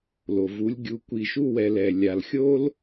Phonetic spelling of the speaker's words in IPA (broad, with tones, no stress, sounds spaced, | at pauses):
l o˨ v u˨˦ lʲ ɡʲ u˧ kʷ i˨ ʃ u˧ w ɛ˨ l ɛ˨ lʲ a˨ l xʲ o˦ l